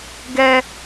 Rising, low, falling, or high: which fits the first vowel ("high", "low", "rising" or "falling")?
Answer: high